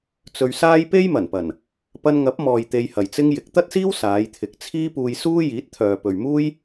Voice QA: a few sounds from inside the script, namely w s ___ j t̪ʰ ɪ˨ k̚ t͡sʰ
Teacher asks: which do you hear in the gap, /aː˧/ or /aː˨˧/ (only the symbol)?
aː˨˧